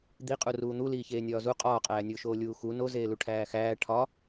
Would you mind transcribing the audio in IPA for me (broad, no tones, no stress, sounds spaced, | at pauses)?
d̪ i qʼ u r uː n̪ u l iː ç eː nʲ ɒː z u qʼ ɒː qʼ æː nʲ oː ʃ oː lʲ uː x u n o z eː l u ʈʰ æː x æː ʈʰ ɒ